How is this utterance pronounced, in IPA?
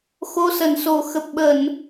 xo˨˦sə˧˩nso˧˩ xə˨˩p̚ɓə˧˩˨n

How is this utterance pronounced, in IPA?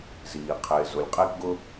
ziː˩ qʰɪː˩zʊ˩lʲqʼe˥k ɡʊ˥

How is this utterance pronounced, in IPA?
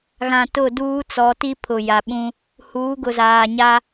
ɣã˨ tʊ˦˨duː˦t͡sɔ˨˦ ti˦pʰʊ˨ja˨ɓũ˦ | huː˨˦ɡʊ˨zaː˨ɲa˦

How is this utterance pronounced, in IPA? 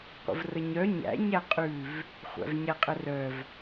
qʷə̰vrəɲœ ɲæ̰ ɲæqʼʉv | χʷæ̰vɲæqʼərœv

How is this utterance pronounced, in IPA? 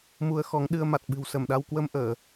mu˧ə̯xɔ˨˦ŋɗɨ˧ə̯ ma˨˩t̚ɓɨ̤˨˩wsə˧˩mɗa˧w kwə˧mʔəː˧˩˨

